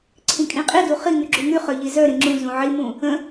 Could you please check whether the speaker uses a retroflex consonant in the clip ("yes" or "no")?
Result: no